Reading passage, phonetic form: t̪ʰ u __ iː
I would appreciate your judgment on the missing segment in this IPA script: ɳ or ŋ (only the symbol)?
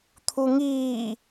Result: ŋ